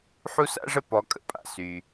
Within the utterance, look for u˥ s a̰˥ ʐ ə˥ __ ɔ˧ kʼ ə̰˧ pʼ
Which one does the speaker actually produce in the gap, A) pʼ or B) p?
B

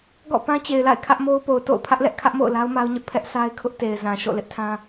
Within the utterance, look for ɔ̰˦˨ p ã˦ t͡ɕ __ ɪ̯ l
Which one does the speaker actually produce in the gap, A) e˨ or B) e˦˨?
A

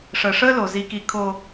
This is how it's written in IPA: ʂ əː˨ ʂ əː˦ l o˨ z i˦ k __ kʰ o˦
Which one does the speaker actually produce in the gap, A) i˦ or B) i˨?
A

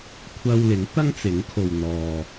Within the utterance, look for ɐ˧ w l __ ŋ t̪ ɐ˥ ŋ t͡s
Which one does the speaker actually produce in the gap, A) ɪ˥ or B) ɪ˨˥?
B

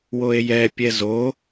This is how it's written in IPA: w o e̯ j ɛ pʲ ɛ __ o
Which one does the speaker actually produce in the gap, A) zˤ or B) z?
B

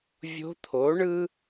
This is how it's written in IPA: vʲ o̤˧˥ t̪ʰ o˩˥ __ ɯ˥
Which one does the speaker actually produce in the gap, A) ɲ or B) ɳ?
B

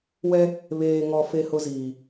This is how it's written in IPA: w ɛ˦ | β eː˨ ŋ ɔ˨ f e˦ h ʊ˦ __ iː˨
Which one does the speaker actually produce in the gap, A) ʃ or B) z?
B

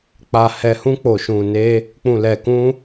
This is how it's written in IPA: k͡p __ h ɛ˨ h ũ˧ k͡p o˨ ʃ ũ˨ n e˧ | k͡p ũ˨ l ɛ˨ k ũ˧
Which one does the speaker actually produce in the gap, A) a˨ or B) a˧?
A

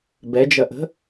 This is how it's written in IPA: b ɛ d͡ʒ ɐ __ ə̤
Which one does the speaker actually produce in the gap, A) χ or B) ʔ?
B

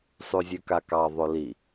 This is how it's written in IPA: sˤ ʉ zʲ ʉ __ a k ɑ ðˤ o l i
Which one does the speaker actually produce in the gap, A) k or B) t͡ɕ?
A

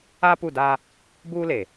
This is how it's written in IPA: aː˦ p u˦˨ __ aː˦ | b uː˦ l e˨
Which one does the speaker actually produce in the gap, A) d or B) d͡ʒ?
A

